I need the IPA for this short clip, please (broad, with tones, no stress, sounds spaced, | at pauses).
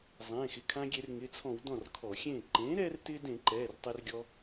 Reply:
zˤ ẽː˩˧˩ x ɪ˩˧˩ kʰ ã˧ ɡʲ e˧˩˧ r ŋ ɪ˩˧˩ t͡sʰ ɔ̃˧˩˧ w d ɔ̃˥˩ r kʰ ɔ˧˩˧ xʲ ẽː˥˩ ǃ ẽː˩˥ ɾ ɛː˧ r t ɪː˧ d ẽ˧˩˧ ǃ ɛː˩˧˩ r tˤ ɪː˧ r ɡʲ ɔ˧